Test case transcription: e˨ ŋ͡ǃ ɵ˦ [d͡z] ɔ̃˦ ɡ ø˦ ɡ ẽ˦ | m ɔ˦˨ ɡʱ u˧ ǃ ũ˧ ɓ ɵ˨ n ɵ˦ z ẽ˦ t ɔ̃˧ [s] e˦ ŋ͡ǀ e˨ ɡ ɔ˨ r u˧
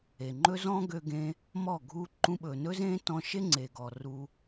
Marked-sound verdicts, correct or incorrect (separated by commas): incorrect, incorrect